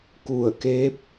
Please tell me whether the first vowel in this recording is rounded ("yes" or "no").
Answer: yes